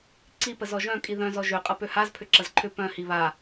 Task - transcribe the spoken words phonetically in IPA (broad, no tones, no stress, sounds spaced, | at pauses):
ǀ i p ə z ɔ ʒ œ̃ kʼ i ð œ̃ z ɔ ʒ ø qʼ ɐ p ø h a z pʰ ʏ ǁ ɐ z ǃʰ ʏ p œ̃ h i β a